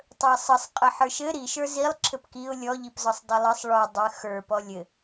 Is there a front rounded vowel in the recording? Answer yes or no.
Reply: no